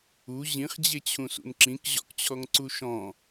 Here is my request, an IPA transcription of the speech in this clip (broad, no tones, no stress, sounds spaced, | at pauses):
u ʑ ĩ χ d͡ʑ e t͡ɕʰ ũ s ṵ n ǁ ĩ k ʑ ɔ̰ k t͡ɕʰ ɔ ŋ ǀ u ʃ ɔ̃